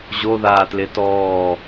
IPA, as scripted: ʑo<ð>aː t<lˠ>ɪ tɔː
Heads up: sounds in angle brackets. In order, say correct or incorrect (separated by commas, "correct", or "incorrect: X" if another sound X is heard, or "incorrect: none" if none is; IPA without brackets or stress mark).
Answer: correct, incorrect: l